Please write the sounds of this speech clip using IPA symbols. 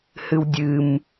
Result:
h ɨ w dʲ ɨ m

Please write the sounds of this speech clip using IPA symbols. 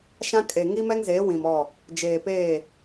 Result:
ʃ ã˦ kʼ e˨ ŋ i˦ m ɛ˦ ŋ z eː˨˦ w ĩ˨ m ɔ˦˨ | d͡ʒ eː˨ p eː˦˨

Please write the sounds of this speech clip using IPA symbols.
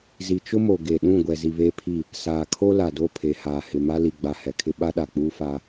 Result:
z i˨ t͡ʃ ʊ˦ m o˨ ɡ e˨ ɗ ũ˦˨ ɡʷ ɛ˨ z i˨ β eː˦ pʰ i˦˨ | s aː˨ kʰ o˦ l a˨ d o˦˨ pʰ e˨ h aː˨ h ɪ˨ m a˦ l i˨ ɡ͡b a˨ h ɛ˨ kʰ ɪ˦ ɓ a˦ ɗ a˨ k͡p uː˦ f aː˦

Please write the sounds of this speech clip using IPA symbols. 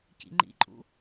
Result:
c ḭ ŋ͡ǃ ḭ ǃʼ ṵ

